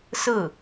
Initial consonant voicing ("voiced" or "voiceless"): voiceless